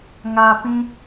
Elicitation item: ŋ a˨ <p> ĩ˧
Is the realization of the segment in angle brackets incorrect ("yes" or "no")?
no